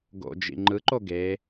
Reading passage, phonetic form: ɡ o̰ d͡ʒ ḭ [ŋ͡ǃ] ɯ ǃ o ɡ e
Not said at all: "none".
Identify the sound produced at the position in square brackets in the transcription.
ŋ͡ǃ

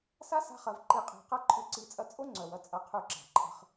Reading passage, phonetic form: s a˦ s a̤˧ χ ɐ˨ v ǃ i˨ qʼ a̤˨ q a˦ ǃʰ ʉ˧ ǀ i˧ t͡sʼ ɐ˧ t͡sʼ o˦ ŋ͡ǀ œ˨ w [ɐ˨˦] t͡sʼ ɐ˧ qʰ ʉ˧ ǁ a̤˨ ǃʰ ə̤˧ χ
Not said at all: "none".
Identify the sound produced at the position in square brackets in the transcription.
ɐ˨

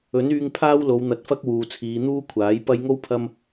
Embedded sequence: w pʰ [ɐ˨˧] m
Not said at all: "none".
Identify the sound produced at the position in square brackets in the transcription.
ɐ˥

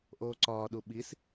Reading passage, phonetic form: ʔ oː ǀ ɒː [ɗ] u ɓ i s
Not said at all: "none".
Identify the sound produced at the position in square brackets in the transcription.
ɗ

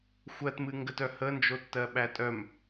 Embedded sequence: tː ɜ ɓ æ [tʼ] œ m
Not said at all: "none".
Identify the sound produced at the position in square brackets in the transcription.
tʼ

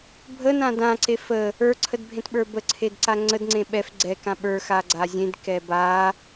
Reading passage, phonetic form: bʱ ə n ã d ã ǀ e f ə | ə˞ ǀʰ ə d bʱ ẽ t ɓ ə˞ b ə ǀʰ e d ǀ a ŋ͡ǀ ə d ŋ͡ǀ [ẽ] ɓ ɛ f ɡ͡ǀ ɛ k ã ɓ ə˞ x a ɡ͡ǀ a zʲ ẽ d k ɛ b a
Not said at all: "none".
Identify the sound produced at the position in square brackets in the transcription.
ẽ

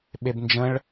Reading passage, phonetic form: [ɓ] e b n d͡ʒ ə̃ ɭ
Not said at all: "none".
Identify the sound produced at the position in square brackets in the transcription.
ɓ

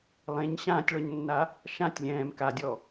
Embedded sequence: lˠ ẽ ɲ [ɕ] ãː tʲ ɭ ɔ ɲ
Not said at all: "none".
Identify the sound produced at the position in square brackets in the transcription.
ɕ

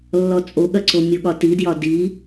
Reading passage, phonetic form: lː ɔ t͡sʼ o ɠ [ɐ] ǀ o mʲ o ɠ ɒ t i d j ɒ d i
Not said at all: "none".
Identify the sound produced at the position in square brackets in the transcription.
ɐ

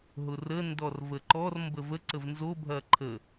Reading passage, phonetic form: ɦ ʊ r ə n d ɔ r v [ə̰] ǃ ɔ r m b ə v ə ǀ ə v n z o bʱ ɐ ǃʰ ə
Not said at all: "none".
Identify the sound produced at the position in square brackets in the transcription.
ə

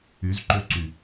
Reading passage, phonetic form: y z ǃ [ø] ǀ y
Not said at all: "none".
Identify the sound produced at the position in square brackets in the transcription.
ø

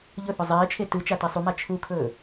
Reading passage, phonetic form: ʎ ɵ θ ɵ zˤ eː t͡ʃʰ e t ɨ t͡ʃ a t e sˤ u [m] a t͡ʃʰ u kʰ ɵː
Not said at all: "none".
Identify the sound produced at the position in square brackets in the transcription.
m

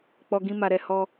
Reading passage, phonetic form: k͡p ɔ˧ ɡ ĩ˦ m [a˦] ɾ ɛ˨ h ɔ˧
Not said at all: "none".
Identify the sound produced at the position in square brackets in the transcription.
a˧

